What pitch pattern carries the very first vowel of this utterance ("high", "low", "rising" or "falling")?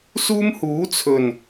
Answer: high